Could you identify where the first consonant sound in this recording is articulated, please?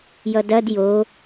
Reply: palatal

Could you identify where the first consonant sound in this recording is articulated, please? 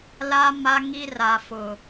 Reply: alveolar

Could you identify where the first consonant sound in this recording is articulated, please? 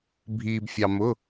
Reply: labial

